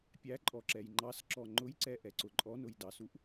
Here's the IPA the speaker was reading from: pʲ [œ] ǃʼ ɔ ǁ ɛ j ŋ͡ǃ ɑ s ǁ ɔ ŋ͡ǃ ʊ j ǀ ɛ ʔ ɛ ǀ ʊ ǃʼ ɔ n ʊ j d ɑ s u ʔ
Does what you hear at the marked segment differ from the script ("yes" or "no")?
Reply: yes